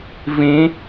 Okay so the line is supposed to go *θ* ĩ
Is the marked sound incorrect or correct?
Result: incorrect